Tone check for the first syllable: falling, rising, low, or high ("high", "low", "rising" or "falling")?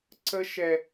high